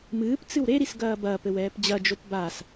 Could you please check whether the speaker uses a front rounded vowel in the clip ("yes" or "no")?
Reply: no